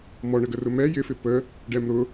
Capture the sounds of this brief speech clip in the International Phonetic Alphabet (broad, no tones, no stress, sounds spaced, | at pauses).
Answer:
m ɔ ɳ ə ɡ ə r ʊ m ɛ j ɪ f ɪ p ə | ɖ ɛ m ɾ ʊ